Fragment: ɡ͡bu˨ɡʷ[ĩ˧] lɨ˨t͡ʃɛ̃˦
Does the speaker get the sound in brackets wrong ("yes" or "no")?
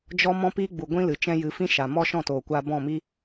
yes